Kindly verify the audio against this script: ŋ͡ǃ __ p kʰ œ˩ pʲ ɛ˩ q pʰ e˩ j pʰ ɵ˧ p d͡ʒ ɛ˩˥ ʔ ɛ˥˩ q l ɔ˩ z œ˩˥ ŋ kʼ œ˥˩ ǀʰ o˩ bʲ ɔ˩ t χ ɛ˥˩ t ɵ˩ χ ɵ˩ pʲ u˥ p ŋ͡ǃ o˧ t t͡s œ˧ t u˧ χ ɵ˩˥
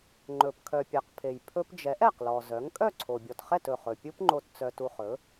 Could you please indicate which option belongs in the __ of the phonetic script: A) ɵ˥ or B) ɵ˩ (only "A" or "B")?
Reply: B